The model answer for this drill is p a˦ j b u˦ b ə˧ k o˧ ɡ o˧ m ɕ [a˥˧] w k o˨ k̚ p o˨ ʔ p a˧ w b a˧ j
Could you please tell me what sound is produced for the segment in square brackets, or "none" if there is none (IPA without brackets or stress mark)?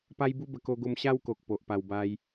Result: a˦